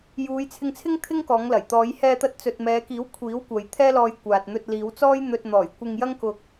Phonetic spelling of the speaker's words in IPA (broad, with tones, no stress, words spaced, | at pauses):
juː˨˧jt͡sʰɪ˧ŋt͡sʰɪ˥ŋ t̪ʰɪ˥ŋkɔː˨˧ŋlɐ˨˩j t̪ɔː˨˧jhɛː˧t̪ɐ˧t̚ t͡sɵ˨t̚mɛː˨˧kiː˨˥w kʷʰiː˨˥wkʷɐ˨jt̪ʰɛː˥ lɔː˧jkʷaː˨t̚n̪ɵ˧t̚ liː˨˧wt͡sɔː˥j n̪ɵ˧t̚n̪ɔː˨˩jkʷɪ˧ŋ jɐ˥ŋkʊ˧k̚